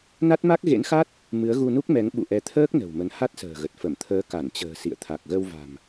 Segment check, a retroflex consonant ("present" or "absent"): absent